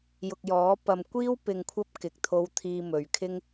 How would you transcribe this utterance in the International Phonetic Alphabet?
jʊ˨k̚jɔː˨˥ pɐ˨mkʷiː˥w pɪ˧ŋkʷʰɐ˥p̚ kɪ˨k̚t̪ʰo˧w t̪ʰiː˧mɵ˨ɥkʰɪ˥ŋ

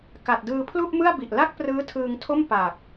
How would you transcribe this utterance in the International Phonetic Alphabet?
ka˨˩t̚dɯː˧pʰlu˥˩ʔmɯ˥˩a̯ bi˨˩ʔla˥˩k̚ prɯː˦˥tʰɯː˧ŋtʰo˥˩mpaː˨˩k̚

